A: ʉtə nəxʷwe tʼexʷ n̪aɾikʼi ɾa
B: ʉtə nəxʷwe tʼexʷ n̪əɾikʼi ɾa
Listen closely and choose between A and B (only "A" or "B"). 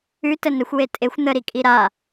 B